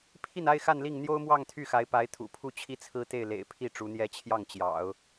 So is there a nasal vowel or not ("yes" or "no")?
no